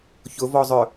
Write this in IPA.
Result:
çʊvɔzˤœ

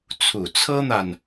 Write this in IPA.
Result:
t͡sʰu˨˩t͡sʰɤ˥n̪a˨n

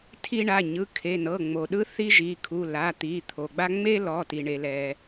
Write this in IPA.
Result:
tʰi˥ ɳa˩˧˩ɲɯ˩˧˩ kʰe˩˧˩nɤ˩˧˩ŋ͡mo˩ɗɯ˥ θi˥ʒi˩˧˩kʰu˩˧˩ la˩˧˩t̪i˩˧˩t̪ʰo˩ɡ͡ba˥ ŋ͡me˥ lɔ˩˧˩ti˩ ɳe˩lɛ˩

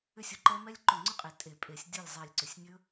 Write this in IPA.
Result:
ʏ˥˨sʲo˨˦ ǃɛ˦˥ mɛ˦˥lʲǃʏ˧˩ŋ͡ǀʏ˥˨qʼe˨˩˦ tʼe˨˩˦pʼe˨˩˦sʲ dʲo˥˨lʲzˤe˧˩lʲǀʏ˨˩˦sʲ nʲɵ˦˥

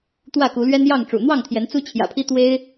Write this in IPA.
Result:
t̪wä˥˨ku˨˦lɥɛ˦njɑ˥˨ŋ ʈ͡ʂṵ˨˩ n̪wɑ˥˨ŋt̪ʰjɛ˨˦n t͡su˦t͡ɕʰjä̰˨˩pʰi˦ t̪we˦ɪ̯

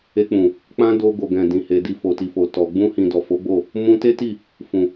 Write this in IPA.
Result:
e˧k͡pũ˨ | k͡pã˦ do˧ ɡo˨ɡɛ̃˨ dĩ˨he˨di˧ fo˨ti˨fo˨tɔ˨ ɡ͡bũ˧hĩ˨ dɔ˨fo˨˦ɡ͡bo˦˨ | mũ˦ te˦ti˦˨ | fũ˨

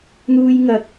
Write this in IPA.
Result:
n̪uː˥jŋɐ˧k̚

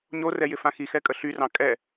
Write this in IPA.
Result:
ɲorɛ jɪfãxixɛ kʼəɬyrɑ̃ kʼɛ

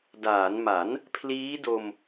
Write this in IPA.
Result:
daː˩˦nma˩˦n | pʰliː˦˥do˧m

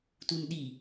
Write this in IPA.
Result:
tunɗi

